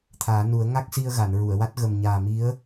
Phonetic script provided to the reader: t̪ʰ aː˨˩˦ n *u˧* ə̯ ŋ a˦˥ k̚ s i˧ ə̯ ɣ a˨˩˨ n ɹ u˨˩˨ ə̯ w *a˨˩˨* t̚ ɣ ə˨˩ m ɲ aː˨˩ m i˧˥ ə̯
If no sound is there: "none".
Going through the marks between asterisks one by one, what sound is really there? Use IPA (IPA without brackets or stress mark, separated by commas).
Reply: u˨˩˦, a˦˥